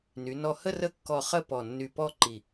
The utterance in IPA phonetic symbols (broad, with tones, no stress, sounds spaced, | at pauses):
n y˩˧ n ɔ˧˩ h ə˥˧ r ə˥˧ kː ɔ˧ χ ə˥˧ p ɔ˧˩ nː y˧ p ɔ˥˧ ǃ i˧˩